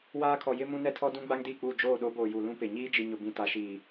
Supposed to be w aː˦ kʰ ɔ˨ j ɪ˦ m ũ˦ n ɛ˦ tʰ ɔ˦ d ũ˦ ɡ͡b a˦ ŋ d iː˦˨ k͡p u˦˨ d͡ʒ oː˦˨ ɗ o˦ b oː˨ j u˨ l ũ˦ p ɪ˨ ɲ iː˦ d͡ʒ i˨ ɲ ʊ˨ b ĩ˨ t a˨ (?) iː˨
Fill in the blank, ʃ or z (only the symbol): ʃ